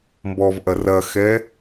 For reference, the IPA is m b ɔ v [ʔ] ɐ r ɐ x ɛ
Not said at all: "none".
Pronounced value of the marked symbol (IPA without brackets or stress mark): ʔ